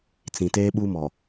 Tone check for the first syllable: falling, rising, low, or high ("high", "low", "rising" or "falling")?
low